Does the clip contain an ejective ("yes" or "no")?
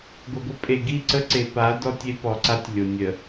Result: yes